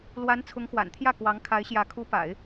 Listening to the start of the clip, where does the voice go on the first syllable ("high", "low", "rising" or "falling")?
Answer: rising